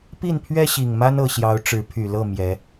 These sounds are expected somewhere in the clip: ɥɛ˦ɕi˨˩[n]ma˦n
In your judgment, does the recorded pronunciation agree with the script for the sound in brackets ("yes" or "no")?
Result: no